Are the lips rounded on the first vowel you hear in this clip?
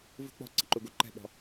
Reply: yes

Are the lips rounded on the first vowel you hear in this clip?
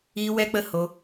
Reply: no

